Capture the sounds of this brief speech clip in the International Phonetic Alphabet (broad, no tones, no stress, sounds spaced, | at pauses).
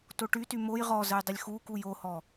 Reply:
t o ʈ y t y m o j ʁ ɔ z ə j dˤ ə lʲ x u k u j o h ɔ